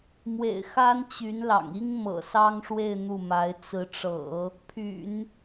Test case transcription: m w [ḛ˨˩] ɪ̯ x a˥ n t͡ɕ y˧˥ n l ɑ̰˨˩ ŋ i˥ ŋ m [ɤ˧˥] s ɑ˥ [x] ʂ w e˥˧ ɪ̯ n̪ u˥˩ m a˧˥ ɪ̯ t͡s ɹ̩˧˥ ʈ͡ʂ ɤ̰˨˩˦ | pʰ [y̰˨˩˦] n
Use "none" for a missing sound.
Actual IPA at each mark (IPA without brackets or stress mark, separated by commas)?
ḛ˨˩, ɤ̰˨˩, ŋ, y̰˨˩˦